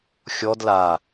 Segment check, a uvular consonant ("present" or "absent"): absent